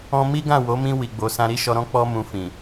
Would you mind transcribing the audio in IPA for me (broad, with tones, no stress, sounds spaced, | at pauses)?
ɔ̃˦ m i˦ ɡ ã˦˨ w o˨˦ m ĩ˧ w i˨ ɡ͡b o˨ s ã˧ ɾ i˦ ʃ ɔ˧ ɾ ɔ̃˦ k͡p ɔ˧ m ũ˧ f ĩ˨